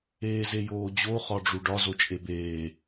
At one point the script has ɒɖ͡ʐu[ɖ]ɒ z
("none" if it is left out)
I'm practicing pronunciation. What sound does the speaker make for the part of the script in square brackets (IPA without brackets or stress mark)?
ɖ